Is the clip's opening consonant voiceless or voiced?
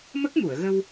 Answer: voiced